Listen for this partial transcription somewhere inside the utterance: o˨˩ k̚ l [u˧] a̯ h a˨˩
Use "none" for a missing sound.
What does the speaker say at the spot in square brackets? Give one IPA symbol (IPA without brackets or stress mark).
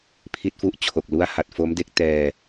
u˦˥